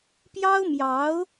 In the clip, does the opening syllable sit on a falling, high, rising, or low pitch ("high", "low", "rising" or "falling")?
high